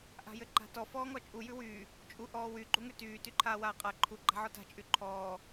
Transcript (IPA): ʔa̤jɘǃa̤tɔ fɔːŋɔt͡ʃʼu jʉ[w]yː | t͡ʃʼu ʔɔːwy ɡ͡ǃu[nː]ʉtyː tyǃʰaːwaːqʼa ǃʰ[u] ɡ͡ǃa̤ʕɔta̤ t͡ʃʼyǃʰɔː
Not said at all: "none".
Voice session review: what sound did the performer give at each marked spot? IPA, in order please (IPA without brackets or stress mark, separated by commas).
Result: w, ŋ, u